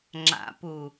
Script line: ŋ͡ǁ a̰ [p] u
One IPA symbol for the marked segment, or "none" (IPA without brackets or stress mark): p